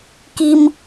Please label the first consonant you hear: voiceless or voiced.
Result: voiceless